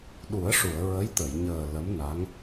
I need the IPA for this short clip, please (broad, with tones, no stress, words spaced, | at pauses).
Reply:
ɗu˨˩˦ə̯ʂu˨˩˨ə̯ ɹə˧˥jt̪ə˨˩˨jɲəː˨˩ lə˧˥mna˧˥ŋ